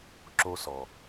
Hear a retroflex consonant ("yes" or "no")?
no